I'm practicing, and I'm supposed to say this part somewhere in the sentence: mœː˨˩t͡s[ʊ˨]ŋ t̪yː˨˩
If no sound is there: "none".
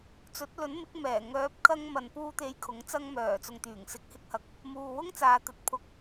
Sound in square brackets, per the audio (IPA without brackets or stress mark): ʊ˨